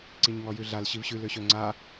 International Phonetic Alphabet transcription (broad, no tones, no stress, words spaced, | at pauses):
ǀiɲŋɔjʉɮal ɕivɕʉl øɕøŋ͡ǀa